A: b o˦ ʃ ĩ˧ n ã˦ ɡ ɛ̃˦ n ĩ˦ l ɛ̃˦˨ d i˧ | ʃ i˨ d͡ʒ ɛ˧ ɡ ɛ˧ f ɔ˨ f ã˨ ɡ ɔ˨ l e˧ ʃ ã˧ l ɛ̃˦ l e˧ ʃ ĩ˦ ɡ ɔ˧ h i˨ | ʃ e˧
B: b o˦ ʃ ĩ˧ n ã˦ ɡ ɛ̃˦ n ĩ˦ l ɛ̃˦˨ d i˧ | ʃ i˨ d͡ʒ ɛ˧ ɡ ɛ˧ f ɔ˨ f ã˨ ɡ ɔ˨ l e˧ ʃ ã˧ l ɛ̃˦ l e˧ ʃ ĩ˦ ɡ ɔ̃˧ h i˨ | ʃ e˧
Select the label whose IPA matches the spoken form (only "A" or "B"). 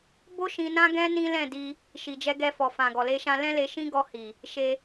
A